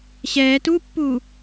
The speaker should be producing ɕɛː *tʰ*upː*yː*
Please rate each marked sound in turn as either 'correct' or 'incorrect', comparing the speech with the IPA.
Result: incorrect: t, incorrect: uː

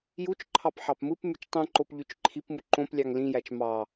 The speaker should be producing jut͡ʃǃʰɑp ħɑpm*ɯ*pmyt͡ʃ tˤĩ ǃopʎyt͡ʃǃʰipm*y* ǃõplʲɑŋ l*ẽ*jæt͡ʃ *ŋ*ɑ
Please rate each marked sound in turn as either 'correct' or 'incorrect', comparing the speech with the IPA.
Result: correct, incorrect: u, incorrect: ĩ, incorrect: m

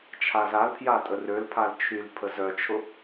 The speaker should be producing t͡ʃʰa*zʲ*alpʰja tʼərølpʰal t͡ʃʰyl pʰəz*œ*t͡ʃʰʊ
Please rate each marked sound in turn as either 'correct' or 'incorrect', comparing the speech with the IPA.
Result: incorrect: z, correct

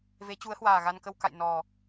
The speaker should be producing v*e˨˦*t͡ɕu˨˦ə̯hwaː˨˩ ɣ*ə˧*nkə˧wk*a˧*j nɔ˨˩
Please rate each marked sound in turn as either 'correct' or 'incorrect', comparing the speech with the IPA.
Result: correct, incorrect: a˧, incorrect: a̰˧˨

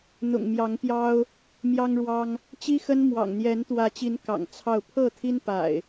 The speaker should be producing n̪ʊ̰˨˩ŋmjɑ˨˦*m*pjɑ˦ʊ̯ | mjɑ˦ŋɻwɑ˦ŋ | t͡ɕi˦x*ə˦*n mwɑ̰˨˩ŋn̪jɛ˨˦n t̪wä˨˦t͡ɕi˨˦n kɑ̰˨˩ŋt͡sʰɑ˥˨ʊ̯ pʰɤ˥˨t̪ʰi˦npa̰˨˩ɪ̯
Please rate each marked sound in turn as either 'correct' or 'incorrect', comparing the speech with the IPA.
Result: incorrect: ŋ, correct

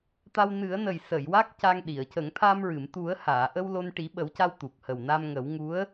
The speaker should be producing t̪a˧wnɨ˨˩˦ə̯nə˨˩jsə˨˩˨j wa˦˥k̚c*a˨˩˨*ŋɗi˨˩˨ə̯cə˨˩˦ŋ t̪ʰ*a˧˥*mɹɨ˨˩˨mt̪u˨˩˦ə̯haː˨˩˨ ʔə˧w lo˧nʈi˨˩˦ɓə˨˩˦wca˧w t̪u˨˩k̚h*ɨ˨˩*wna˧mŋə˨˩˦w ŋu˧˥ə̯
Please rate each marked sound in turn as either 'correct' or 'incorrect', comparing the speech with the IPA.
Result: incorrect: a˧, incorrect: a˧, incorrect: ə˨˩

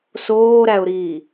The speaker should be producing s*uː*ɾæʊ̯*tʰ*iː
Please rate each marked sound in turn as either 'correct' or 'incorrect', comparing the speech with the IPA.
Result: incorrect: oː, incorrect: ɾ

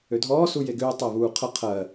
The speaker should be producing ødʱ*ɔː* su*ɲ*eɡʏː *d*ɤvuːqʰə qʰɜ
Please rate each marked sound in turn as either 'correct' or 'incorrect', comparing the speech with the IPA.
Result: correct, incorrect: j, incorrect: tˤ

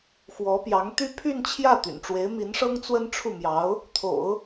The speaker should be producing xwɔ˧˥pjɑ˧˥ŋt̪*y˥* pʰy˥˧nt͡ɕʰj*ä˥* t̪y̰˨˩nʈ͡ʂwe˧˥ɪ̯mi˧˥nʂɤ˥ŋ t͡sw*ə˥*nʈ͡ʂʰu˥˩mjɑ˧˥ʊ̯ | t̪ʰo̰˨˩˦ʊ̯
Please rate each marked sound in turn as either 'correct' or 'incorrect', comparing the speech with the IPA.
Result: correct, incorrect: ä˥˩, correct

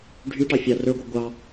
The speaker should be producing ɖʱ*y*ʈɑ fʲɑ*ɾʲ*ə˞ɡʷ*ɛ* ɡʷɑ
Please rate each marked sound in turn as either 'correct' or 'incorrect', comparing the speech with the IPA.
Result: correct, incorrect: r, incorrect: e

